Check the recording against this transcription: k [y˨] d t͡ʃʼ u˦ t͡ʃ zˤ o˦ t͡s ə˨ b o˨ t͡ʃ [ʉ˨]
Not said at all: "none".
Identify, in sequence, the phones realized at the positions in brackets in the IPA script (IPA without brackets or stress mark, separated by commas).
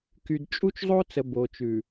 y˨, ʉ˨